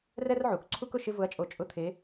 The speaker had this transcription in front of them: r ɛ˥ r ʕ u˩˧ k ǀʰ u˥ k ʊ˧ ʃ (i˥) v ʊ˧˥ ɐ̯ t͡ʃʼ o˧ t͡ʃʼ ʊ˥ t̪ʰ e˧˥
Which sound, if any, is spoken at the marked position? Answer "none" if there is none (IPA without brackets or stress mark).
ɪ˥